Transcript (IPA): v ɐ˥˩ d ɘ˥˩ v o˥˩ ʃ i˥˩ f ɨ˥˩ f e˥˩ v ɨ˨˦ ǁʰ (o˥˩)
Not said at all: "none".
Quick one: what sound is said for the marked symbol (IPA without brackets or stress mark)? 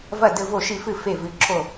o˥˩